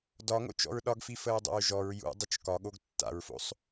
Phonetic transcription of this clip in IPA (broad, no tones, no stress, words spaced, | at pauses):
dɒŋo̰t͡ʃɔ̰ɹ ɗɒɡfifəɹdˤo̰ɹ ʒɔɹ jṵdˤət͡ʃ kɒɠoɡ tːa̰ɹfo̰sˤ